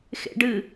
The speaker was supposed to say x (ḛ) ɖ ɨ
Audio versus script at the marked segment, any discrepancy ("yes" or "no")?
no